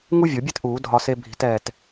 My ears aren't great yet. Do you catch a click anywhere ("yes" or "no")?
no